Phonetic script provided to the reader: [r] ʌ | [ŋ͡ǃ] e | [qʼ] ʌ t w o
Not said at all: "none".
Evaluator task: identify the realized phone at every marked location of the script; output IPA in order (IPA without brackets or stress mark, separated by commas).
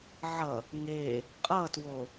ʕ, ŋ, qʼ